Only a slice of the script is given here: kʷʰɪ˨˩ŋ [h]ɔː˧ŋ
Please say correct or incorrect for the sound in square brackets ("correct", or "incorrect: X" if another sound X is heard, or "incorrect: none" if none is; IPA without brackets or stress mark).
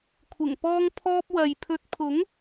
incorrect: p